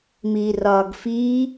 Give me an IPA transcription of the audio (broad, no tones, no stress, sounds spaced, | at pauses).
m iː r ɒː ɡ f iː